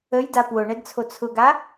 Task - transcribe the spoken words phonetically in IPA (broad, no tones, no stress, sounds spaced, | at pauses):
ə j d a p w ʊ ɳ ɛ d t͡sʰ o t͡sʰ ʊ ɡ a